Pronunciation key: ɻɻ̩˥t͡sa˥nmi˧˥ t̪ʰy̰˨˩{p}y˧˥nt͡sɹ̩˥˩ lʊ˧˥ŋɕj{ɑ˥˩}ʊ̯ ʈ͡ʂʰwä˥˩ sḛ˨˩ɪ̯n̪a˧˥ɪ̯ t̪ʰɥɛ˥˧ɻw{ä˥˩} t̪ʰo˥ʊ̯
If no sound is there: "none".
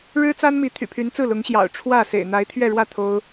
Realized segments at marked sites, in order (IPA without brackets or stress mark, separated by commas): pʰ, ɑ̰˨˩, ä˥˩